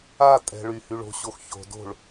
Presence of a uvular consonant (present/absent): absent